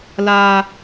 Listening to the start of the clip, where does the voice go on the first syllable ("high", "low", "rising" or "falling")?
low